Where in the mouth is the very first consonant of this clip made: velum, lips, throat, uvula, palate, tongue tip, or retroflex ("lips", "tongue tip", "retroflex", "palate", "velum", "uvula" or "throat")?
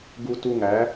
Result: velum